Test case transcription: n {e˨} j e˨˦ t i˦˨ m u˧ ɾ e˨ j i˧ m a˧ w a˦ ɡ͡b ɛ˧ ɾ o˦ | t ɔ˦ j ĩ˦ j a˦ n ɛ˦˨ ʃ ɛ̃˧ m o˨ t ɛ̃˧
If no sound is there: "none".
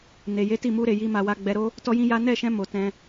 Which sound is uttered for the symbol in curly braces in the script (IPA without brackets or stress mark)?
e˨